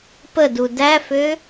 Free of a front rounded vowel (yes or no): no